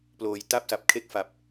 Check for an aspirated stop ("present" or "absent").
present